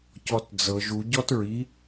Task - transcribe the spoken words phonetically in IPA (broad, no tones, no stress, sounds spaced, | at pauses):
c ɔ t d͡z ɤ ʒ u ɟ ɔ t ɹ i